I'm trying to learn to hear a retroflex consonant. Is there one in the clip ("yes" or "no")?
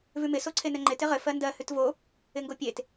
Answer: no